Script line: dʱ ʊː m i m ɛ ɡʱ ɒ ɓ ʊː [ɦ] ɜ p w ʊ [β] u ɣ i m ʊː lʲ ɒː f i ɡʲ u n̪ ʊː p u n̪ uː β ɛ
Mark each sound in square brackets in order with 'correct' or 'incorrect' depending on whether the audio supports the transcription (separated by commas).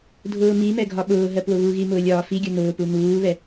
correct, correct